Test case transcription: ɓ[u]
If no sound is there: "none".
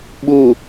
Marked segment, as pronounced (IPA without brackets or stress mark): u